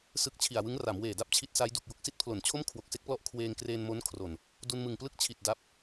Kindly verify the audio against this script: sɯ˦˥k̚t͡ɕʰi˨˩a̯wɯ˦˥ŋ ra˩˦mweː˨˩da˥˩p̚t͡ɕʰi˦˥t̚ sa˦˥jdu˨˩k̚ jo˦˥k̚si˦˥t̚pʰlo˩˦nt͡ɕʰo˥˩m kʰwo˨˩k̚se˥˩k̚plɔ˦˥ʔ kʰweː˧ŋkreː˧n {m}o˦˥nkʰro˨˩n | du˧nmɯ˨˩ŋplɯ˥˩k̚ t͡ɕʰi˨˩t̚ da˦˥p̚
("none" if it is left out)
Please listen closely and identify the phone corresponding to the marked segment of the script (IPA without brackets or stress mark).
m